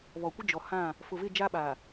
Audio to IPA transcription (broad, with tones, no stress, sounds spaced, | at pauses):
β ɔ˨ kʷ ɪ˦ d͡ʒ ɔ˨ h ã˦˨ | f ʊ˨ v ɪ˦˨ d͡ʒ aː˦ ɓ aː˨